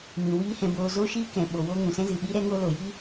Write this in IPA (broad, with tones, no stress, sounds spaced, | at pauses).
m ĩ˨ w iː˦ h ɛ̃˧ b oː˧ z o˦ ʃ iː˦ k ɛ̃˨ ɓ o˨ w oː˧ ŋ ũ˨ s ɛ̃˦ z ɨ˨ ɓ i˦ ɾ ɛ˦ ŋ o˦ l o˨ j i˦